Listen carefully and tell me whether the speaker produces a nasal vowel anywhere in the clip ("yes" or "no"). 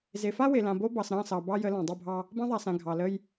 yes